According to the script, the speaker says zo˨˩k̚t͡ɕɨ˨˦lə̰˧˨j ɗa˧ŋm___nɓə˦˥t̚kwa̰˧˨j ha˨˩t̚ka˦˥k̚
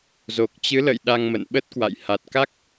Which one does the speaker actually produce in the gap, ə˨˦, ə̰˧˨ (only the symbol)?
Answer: ə̰˧˨